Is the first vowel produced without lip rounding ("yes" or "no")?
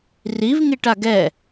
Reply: yes